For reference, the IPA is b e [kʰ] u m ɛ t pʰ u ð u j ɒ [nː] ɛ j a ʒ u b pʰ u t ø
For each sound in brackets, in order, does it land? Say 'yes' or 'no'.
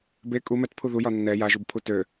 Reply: no, yes

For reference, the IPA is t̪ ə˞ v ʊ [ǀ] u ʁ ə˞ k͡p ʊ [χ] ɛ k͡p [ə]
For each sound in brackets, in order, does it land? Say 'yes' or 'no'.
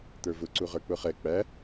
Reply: yes, yes, no

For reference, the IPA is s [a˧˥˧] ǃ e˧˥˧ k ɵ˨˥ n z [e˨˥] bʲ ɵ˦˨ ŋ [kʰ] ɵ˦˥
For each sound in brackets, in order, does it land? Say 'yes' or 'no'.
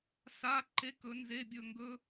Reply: yes, no, no

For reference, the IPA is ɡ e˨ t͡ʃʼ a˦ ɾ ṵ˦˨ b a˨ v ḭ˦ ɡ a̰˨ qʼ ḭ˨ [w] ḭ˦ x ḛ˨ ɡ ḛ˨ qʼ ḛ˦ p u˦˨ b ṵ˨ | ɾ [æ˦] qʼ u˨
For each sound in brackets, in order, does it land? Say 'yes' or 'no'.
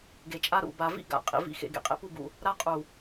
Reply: no, no

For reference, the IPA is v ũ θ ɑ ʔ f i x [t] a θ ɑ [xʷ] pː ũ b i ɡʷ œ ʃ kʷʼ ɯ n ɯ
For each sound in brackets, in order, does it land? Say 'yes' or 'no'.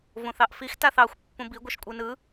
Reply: yes, yes

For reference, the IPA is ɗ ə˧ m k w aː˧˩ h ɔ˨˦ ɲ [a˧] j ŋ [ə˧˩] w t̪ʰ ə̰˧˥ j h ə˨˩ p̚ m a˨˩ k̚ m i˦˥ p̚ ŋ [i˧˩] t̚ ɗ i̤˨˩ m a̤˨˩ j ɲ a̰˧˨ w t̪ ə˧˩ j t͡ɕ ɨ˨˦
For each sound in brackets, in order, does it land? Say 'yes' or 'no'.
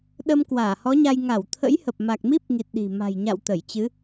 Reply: yes, no, no

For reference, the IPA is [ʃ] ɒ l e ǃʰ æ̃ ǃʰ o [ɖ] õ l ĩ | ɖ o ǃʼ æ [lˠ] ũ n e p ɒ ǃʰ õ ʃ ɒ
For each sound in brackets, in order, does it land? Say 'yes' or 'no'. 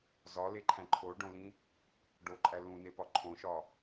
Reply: no, yes, no

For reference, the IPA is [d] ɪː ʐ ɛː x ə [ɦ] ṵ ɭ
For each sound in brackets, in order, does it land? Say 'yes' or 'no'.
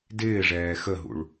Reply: yes, yes

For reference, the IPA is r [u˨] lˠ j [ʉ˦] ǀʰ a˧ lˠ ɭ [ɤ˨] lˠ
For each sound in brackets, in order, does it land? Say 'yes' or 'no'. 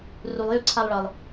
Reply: yes, yes, yes

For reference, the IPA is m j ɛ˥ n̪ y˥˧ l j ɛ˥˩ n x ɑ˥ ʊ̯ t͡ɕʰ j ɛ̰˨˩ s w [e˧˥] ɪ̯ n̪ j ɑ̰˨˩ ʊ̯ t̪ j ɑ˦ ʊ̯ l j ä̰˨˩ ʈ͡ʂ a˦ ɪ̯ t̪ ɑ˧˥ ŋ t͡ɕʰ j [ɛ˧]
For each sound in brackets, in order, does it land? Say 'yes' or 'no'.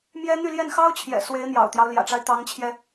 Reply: yes, yes

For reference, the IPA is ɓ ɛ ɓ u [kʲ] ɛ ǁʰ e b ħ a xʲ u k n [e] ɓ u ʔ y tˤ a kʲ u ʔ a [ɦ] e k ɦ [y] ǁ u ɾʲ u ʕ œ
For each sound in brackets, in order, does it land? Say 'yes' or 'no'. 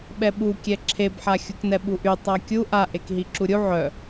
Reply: yes, no, no, no

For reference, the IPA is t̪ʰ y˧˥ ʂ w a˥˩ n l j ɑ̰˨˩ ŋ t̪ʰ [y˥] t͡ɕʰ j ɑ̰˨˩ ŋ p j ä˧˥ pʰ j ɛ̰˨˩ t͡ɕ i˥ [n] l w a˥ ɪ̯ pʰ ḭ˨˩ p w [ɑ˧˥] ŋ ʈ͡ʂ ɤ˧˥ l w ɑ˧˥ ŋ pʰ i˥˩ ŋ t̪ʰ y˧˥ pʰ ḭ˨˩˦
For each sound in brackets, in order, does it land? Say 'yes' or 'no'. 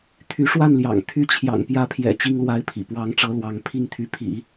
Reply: yes, no, yes

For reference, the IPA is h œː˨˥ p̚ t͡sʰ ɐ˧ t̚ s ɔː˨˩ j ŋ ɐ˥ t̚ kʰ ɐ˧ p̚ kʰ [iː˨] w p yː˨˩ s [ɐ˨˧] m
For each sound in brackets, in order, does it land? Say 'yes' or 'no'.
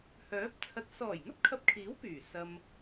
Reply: no, no

